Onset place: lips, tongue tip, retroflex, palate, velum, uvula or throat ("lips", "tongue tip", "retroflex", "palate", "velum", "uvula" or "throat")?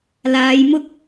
tongue tip